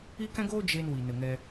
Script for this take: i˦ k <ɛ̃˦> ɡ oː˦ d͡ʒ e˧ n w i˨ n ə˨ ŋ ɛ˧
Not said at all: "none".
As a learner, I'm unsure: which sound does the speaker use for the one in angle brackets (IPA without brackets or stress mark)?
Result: ɛ̃˦